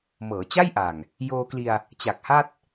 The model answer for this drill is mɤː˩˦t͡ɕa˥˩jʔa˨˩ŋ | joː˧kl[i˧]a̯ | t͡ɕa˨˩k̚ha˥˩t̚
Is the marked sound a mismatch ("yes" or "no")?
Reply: no